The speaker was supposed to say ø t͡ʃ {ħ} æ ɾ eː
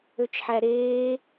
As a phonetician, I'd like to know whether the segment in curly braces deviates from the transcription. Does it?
no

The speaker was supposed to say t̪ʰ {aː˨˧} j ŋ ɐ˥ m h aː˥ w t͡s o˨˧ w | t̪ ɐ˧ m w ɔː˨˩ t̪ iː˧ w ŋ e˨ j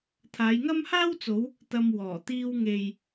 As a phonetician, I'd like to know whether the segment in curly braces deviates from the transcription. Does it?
no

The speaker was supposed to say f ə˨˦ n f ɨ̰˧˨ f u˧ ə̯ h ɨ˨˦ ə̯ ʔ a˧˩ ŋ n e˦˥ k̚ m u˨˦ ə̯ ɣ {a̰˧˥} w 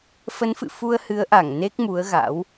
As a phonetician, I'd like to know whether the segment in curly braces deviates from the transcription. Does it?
no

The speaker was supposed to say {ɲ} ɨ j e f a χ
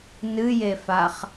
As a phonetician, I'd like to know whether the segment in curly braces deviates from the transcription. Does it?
yes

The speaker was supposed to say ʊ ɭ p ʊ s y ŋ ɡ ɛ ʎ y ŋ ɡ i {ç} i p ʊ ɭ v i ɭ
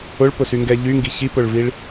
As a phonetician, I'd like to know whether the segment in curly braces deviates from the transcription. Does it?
no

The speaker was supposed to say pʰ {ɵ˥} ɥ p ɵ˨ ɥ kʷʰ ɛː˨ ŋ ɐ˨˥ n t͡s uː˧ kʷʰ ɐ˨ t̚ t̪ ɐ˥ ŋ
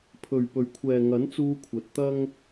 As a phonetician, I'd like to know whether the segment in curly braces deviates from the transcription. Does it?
yes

